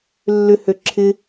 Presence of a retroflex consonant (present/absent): absent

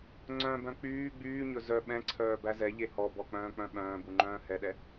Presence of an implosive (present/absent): present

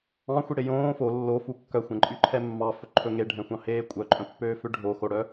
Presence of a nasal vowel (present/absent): present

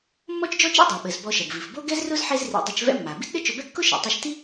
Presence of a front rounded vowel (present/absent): absent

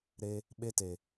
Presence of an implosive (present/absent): present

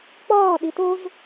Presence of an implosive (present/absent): present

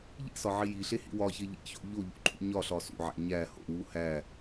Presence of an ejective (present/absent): absent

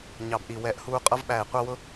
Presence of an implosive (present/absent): present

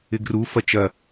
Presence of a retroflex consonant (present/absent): absent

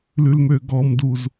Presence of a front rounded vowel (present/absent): present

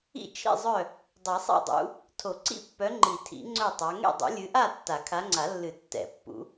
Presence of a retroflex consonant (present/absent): absent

